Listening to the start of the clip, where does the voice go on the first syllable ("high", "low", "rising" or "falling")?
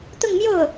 falling